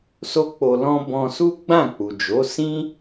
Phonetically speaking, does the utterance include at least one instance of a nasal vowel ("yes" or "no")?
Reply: yes